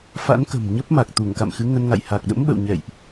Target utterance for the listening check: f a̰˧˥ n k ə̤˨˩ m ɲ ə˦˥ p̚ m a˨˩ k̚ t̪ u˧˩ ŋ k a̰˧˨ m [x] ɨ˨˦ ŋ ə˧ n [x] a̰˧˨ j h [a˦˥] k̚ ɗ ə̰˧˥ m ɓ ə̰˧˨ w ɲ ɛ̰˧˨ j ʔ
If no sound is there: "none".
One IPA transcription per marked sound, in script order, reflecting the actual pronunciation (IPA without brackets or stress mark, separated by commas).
x, ŋ, a˨˩